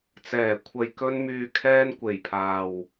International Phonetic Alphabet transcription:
t͡s ɛː˨˩ kʷʰ ɐ˨ j k ɵ˧ n m yː˨ kʰ ɛː˧ n kʷ e˨˩ j pʰ aː˨ w

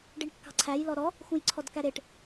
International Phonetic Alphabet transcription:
ɖ i ɳ kː ɑ̤ ǀʰ æ j l ɔ ɾ ɔ | x ũ j ǀʰ ɔ d k æ ɾ e ʈ

